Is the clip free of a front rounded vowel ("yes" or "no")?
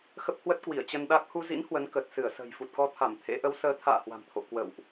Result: yes